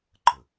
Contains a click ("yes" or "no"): yes